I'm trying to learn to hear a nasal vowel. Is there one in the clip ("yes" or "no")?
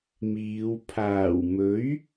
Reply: no